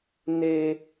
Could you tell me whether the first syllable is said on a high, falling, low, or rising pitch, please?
high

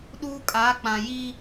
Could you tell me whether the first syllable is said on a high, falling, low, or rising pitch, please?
high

